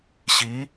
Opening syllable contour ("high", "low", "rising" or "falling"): rising